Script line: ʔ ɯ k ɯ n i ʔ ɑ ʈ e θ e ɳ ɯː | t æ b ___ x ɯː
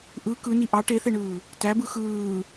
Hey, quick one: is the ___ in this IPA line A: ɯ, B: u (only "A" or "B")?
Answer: A